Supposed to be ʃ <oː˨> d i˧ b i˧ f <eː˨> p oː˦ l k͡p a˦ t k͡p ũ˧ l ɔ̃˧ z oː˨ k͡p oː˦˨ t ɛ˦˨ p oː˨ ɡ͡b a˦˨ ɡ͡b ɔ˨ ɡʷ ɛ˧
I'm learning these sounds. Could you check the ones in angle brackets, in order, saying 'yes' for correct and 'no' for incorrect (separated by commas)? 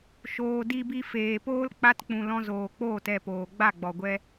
yes, yes